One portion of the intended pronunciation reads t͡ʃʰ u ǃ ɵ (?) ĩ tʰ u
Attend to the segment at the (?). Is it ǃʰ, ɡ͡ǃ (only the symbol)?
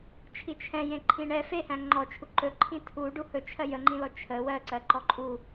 ǃʰ